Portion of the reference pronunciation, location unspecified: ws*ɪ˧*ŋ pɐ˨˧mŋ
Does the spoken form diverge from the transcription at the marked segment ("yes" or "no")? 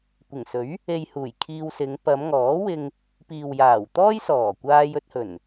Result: yes